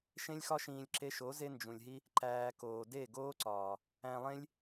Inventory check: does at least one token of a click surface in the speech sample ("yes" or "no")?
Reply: yes